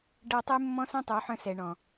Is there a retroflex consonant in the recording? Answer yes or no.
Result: yes